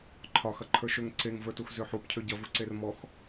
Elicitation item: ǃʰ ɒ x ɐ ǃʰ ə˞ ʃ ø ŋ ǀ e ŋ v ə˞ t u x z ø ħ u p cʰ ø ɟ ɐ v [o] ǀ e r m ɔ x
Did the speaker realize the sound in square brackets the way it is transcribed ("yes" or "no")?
no